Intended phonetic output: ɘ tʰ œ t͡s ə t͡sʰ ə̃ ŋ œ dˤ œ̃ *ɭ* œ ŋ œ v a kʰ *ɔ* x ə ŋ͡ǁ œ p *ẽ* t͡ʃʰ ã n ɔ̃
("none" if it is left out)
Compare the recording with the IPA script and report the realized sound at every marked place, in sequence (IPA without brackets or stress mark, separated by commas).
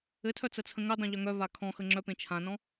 ʎ, ɔ̃, ẽ